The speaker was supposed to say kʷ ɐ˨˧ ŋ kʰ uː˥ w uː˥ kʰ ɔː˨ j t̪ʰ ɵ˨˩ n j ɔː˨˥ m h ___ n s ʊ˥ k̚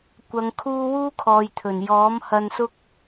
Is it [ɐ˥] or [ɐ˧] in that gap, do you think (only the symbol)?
ɐ˧